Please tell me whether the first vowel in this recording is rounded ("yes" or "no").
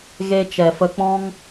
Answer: no